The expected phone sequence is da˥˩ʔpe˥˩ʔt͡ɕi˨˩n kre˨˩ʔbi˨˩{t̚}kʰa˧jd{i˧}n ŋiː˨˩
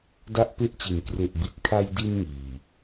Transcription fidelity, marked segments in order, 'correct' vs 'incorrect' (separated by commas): correct, correct